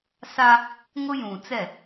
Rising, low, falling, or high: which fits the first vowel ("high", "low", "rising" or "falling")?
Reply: high